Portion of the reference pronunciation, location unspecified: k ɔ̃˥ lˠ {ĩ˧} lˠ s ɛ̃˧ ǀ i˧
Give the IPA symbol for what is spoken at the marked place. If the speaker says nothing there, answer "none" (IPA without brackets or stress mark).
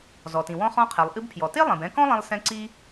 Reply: ĩ˧